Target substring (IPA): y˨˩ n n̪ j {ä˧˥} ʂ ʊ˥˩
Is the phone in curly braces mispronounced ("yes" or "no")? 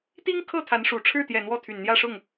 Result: yes